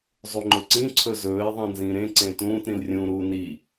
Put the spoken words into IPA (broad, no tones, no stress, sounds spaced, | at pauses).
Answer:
zˤ u ŋ͡ǃ ʊ ǀ ĩ ǀʰ ɵ z ɵː e̯ ðˤ ĩ n z ĩː ɾ ẽ ǀ ẽ t ũː t ɾ ĩ l rʲ ũː ɾ uː n i